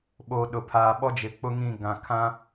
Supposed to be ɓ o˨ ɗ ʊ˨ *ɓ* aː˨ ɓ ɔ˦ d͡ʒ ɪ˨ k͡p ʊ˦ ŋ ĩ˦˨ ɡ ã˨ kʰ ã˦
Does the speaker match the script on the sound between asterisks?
no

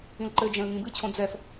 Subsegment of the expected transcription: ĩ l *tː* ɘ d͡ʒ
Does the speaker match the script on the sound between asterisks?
no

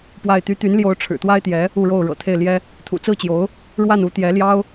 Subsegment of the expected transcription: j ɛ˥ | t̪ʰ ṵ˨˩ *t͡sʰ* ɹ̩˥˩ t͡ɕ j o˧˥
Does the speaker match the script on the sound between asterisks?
no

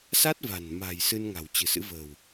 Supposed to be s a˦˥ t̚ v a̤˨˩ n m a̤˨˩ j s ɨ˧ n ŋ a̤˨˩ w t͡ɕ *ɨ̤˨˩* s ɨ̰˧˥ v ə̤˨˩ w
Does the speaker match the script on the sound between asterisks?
yes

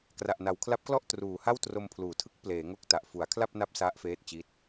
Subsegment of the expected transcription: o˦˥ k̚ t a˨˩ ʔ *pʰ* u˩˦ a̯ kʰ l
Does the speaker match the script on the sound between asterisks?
no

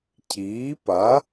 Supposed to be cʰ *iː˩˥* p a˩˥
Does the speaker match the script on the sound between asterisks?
yes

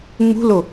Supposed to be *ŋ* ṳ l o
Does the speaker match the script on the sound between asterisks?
no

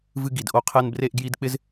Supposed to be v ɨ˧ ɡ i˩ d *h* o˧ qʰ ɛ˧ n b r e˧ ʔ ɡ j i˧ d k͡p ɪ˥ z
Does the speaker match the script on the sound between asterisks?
no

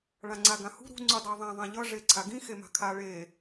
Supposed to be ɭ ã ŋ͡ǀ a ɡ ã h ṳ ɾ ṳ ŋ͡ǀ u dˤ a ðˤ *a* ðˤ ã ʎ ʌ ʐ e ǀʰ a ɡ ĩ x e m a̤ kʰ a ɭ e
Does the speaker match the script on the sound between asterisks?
no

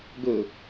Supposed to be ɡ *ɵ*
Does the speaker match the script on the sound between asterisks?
yes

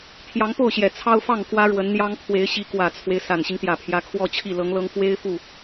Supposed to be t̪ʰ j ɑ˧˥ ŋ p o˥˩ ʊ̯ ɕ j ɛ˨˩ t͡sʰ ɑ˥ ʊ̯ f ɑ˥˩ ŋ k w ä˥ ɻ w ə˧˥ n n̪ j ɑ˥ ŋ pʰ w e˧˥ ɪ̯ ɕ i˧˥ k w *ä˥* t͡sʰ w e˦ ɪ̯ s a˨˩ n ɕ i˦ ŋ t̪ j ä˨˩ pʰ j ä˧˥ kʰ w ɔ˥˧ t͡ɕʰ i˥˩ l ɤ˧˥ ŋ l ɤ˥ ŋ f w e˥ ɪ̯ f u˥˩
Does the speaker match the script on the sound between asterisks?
no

